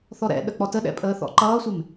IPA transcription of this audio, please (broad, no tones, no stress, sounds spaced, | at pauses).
θ ɔ ɾ ɛ̰ ɗ ə k͡p ɔ t ə ɗ ɛ̰ pʼ əː θ ɔ̰ ǃ ʌː sʷ ɪ m